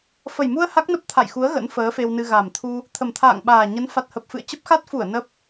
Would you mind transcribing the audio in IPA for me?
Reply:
f ə˨˩ j m u˧ ə̯ h a˦˥ k̚ n ə˦˥ p̚ t̪ʰ a̰˧˨ j x u˨˦ ə̯ ɣ ə̰˧˥ n f əː˨˦ f e˧ w n ɨ˧ ɣ a˨˩ m t̪ʰ u˧ | t̪ʰ ə˨˩ m t̪ʰ a̰ː˧˨ ŋ ɓ aː˨˩ ɲ ə˨˦ n f a˨˩ t̚ h ə˨˩ p̚ f ɨ̰˧˨ ə̯ t͡ɕ ə˦˥ p̚ x a˦˥ t̚ f u˧˩ ə̯ n ə˦˥ p̚

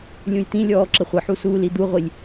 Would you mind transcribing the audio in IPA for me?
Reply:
lʲ ũ j t̪ ĩ lʲ ɔː ǁ ə χʷ ə ħ u s uː l i d̪ u ʁʷ i lʲ

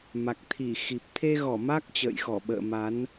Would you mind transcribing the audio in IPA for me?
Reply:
m a˨˩ k̚ t̪ʰ i˧˩ x i˨˩ p̚ t̪ʰ e˧ ɣ ɔ˧˩ m a˦˥ k̚ t͡ɕ ə̰ː˧˨ j x ɔ˧˩ ɓ ə̰ː˧˨ m a˨˦ n

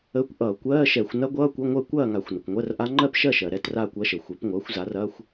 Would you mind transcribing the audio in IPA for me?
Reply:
əː˧˥˧ kʷ ʔ ʌː˧˩˧ kʷ ɜː˧˥˧ ʃ ɛ˧˩˧ xʷ n ɐ˦˥ ɡʷ ʌː˧˥˧ kʷ ə˧˥˧ ŋʷ ɜ˥˨ kʷ ɐː˥˨ ŋ a˧˩˧ xʷ n ʌ˩ kʷ ŋʷ ɜ˧˥˧ r ʔ a˦˥ ŋ͡ǃ ɜ˥˨ p ʃ ɜ˥˨ ʃ ɜ˩ ɾ ɛ˧˥˧ t r aː˥˨ kʷ ɐ˦˥ ʃ ə˩ xʷ ɛ˩˥ p ŋʷ ʌː˩˥ xʷ z a˩˥ r ɐː˧˥˧ xʷ

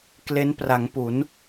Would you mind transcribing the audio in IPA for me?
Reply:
k l e˦˥ n p r a˩˦ ŋ p u˩˦ n

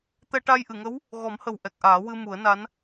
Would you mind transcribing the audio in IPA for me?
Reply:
t̪ ɛ˧ ʈ a˧ j ʔ ɨ˨˩˨ ŋ ə˧˥ w | ɣ ɔ˨˩˦ m h ə˨˩ w ʔ ɛ˨˩ k̚ ʔ aː˨˩˦ w ɨ˧ m u˨˩˦ ə̯ n a˧˥ n

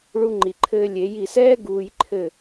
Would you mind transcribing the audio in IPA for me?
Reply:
ɭ u˧ ŋ͡ǃ i˨ ǃʰ ɘː˧ lʲ e˨˦ j i˨ s ɛː˦ ɡ uː˧ j ǃʰ ɘ˦˨

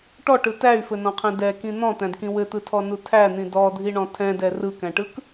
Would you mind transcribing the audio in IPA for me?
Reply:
ʈ ɔ ʈ ɯ t æ y̯ f ɘ n ɔ̃ qʰ ɛ̃ d ɛ k ĩ n̪ ɔ̃ t̪ æ̃ d k ĩ w ɘ t̪ ɯ tʰ ɔ n u tʰ æ n̪ ĩ d ɔ dʱ i ɳ ɔ̃ tʰ ɛ̃ d ɛ r ɯ k æ̃ ʈ ɯ k

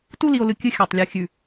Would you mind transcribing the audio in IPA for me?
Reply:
t u˦ l i˨ o̯ l ɨ˨ kʲ ɨ˦ xʲ a˨ tˤ lʲ ɨ˨ xʲ ʉ˨

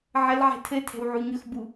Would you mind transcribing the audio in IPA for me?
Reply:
ʕ ə l ʕ ɛ̤ tʰ ɘ tʰ ɛ̤ w ʕ u ɲ ɵ x b u

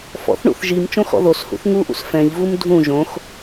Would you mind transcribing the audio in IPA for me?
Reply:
f ɔ̰ θ ɳ ṵ θ ʒ i m t͡ʃ õ x ɔ̰ ð o s h ṵ θ ŋ u ʔ ṵ s f ɛ̃ ʎ v u m dʱ ũ ʒ õ x

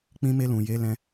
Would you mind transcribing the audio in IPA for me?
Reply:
k͡p ĩ˧ m e˧ l ũ˨ j e˨˦ l ɛ̃˧

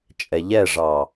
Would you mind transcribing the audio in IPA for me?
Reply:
t͡ʃʼ ɛ ʎ ɛ ʐ ɑ

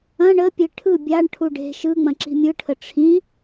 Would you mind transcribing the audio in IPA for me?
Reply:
ɐ̃ ɳ ə pʲ e ʈʰ ɯ bʲ a ɳ ʈʰ u ɖ e̤ ʃ ɯ ŋ͡m ɐ̃ ǁ i̤ mʲ ɯ ʈʰ ə ʈ͡ʂʰ ĩ

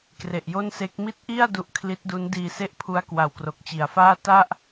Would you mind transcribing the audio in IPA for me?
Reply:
k r e˨˩ ʔ j o˥˩ n s e˦˥ k̚ m i˦˥ t̚ ʔ i˥˩ a̯ d u˦˥ ʔ kʰ l i˦˥ t̚ d u˦˥ n d iː˧ s e˥˩ ʔ pʰ u˦˥ a̯ k w a˨˩ w k r o˨˩ k̚ t͡ɕ i˨˩ a̯ f aː˥˩ t a˥˩ ʔ

